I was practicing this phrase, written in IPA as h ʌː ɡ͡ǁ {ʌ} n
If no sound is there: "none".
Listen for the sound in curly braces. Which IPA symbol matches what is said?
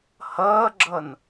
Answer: ʌ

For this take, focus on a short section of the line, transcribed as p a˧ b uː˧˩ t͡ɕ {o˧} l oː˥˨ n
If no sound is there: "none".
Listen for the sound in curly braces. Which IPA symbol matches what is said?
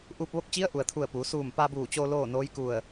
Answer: o˧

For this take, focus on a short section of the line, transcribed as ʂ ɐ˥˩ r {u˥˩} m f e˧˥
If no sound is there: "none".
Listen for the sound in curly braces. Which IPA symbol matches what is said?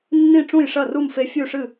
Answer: u˥˩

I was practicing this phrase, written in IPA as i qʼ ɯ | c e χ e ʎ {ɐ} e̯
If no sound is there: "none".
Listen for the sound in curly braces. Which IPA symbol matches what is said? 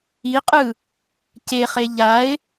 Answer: a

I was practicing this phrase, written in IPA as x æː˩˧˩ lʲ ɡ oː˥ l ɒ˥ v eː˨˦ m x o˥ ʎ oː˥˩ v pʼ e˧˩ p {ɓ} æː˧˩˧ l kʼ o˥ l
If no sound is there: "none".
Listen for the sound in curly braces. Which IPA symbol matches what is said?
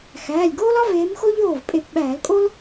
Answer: ɓ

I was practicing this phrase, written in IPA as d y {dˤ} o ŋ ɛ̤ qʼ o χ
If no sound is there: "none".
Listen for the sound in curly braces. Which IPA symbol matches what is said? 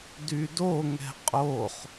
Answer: d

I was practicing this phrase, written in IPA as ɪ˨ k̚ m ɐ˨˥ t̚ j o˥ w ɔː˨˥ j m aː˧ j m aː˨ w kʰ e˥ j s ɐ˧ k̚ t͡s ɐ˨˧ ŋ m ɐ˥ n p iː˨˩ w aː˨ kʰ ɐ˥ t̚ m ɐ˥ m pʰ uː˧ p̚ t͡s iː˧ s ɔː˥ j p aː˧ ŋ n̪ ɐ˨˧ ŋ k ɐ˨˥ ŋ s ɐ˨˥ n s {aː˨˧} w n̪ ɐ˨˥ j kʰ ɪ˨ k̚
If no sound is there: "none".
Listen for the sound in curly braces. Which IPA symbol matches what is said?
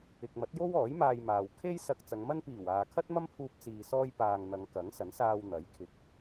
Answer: aː˧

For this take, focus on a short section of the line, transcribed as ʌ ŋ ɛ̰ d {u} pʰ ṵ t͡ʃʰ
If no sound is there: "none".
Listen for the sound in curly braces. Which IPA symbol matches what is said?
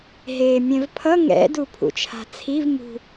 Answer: u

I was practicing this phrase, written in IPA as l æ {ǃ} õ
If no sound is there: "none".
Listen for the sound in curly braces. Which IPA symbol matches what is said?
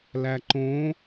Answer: ǃ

